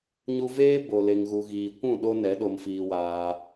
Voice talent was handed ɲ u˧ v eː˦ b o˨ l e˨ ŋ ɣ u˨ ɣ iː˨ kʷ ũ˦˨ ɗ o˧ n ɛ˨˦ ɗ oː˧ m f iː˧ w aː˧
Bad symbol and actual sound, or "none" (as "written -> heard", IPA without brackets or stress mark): oː˧ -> o˧